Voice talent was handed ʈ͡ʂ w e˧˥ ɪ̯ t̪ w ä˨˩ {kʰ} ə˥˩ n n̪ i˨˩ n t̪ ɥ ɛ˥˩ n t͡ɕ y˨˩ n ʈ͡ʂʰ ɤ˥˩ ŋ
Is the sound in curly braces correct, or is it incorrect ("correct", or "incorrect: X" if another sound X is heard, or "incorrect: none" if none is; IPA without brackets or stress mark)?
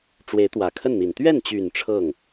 correct